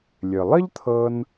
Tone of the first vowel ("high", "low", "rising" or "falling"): low